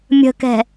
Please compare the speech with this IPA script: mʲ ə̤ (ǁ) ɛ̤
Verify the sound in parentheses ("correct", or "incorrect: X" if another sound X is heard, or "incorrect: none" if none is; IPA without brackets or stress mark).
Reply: incorrect: k